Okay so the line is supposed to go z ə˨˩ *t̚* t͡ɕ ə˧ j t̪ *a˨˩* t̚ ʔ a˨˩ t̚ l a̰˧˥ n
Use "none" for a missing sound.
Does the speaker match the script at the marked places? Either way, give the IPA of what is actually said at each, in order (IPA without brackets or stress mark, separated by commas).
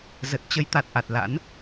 t̚, a˨˩